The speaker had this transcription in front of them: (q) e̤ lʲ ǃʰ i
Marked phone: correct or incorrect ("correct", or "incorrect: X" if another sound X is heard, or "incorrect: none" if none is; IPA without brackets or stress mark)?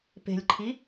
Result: incorrect: p